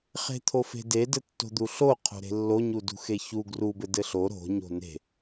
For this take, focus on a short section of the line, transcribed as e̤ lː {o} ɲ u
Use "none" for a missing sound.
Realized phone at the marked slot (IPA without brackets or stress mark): o